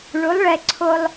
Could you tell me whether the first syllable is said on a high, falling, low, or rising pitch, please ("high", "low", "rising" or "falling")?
rising